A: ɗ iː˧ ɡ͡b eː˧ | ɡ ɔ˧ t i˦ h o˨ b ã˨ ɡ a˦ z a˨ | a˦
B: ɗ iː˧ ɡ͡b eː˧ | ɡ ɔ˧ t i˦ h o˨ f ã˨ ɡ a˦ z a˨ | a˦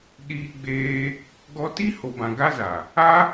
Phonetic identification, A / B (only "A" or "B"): A